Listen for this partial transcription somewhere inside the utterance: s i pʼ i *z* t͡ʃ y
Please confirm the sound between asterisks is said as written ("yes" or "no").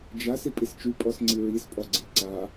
no